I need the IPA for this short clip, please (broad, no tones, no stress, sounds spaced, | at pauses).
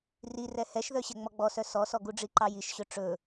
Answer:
r i r ɛ h ɛ ʃ ð œ ɕ ɛ ŋ͡m ɔ ɡ͡b ɔ s œ s ɔ s ɔ ɡ u ɖ͡ʐ i ǃ ɑ j i ʃ ɕ ɵ ʈ͡ʂ ɵ